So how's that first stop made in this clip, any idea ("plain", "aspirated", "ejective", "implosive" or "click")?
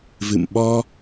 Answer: implosive